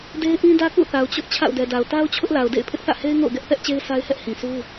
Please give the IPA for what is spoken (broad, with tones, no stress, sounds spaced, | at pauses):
d e˦ ɪ̯ ʔ ĩ˦ d ä˦ k ṵ˦˨ θ a˨ ʊ̯ t͡ɕ ʊ˦ ʔ t͡ɕʰ a̰˦˨ ʊ̯ d ɛ˨ d a˨ ʊ̯ t a˦ ʊ̯ t͡ɕʰ ʊ˦ ʔ l a˨ ʊ̯ d ḛ˦˨ ɪ̯ pʰ ɪ˦ ʔ θ ä̰˦˨ h e˦ ɪ̯ ŋ o̰˦˨ ʊ̯ ɡ ɛ˦ ʔ θ ɛ˦ ʔ t͡ɕ e˦ ɪ̯ sʰ a˦ ɪ̯ h ɛ˦ ʔ h ĩ˨ sʰ u˦